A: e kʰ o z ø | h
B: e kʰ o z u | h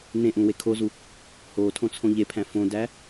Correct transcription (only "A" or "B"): B